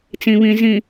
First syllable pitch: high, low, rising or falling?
low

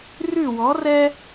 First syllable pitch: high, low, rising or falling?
falling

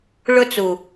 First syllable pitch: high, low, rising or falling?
high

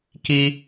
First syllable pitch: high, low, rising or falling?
high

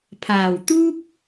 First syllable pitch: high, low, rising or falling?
low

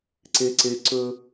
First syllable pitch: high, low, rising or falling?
high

